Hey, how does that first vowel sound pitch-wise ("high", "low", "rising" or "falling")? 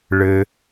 low